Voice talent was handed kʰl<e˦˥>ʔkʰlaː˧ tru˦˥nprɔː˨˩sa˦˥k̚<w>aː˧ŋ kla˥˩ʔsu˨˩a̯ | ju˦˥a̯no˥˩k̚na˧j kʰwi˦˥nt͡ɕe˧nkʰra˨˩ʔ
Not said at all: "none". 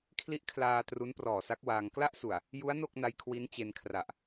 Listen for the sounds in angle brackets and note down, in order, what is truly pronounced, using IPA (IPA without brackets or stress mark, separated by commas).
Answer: i˦˥, w